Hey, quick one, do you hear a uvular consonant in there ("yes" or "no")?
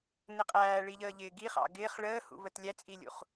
yes